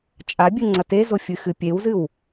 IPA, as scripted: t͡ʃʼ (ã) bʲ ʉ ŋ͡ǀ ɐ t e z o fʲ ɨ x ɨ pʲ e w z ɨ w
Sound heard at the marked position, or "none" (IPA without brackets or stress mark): a